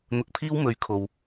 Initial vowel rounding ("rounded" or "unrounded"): rounded